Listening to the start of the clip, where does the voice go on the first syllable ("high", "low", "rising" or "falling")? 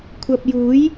low